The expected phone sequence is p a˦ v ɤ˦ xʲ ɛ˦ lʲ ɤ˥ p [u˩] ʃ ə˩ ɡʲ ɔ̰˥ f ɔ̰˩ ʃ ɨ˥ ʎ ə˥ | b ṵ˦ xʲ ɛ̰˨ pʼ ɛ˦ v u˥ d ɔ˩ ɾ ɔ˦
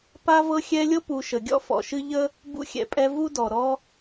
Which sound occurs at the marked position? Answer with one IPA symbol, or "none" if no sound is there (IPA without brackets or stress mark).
u˨